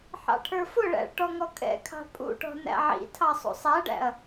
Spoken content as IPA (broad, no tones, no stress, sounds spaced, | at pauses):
ħ ɑ̰ ʈʰ ə˞ f ʊ ɭ æ̰ ɭ ʈ ɔ ŋ ɔ kʼ ɛ̰ kʰ ɑ̤ pʼ ṵ ʈ ɔ̤ n æ̰ ʕ ḭ tʰ ɑ sˤ ṵ sˤ æ ɖ æ̰ ɐ̯